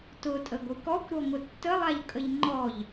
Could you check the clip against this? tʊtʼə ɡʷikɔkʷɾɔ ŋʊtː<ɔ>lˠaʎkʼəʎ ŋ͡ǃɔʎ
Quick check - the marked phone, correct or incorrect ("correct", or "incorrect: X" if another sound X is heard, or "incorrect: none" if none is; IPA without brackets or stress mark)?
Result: incorrect: ə